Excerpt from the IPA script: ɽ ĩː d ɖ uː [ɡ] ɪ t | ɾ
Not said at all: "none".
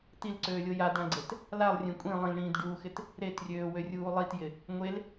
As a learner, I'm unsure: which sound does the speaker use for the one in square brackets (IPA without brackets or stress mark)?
x